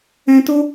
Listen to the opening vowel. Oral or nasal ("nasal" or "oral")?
nasal